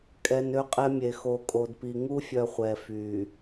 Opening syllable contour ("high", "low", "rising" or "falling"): low